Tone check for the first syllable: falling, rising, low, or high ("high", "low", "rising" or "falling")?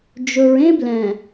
low